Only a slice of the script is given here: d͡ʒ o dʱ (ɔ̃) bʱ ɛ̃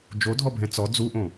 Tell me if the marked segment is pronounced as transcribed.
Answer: no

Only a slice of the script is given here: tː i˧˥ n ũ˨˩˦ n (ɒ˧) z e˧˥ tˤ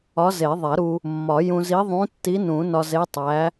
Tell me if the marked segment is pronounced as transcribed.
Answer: yes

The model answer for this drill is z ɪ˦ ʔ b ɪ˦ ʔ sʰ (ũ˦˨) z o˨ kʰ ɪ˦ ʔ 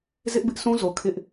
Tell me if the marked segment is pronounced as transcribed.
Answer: no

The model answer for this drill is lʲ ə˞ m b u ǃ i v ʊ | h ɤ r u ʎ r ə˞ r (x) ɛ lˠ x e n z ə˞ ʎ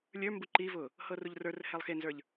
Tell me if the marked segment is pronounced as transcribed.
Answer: no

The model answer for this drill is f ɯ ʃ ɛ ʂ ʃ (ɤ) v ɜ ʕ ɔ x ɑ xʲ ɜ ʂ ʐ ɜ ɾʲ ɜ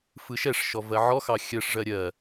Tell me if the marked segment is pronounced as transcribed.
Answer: no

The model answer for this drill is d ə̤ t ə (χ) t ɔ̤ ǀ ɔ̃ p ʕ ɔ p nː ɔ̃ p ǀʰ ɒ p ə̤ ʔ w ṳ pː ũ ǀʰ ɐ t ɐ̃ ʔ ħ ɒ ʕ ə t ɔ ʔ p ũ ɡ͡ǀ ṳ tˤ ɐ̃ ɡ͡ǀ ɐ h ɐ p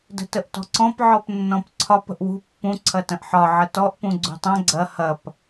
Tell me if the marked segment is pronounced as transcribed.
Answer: no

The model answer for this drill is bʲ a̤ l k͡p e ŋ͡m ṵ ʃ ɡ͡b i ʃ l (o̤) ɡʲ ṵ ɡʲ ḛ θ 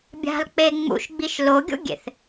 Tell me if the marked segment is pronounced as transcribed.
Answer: no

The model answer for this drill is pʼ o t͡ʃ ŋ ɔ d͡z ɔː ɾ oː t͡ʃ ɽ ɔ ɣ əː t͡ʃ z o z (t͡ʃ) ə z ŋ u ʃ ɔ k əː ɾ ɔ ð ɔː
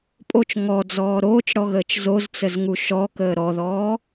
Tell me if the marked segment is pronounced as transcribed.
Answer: no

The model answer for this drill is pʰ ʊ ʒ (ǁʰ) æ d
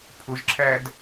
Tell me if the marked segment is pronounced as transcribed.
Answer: yes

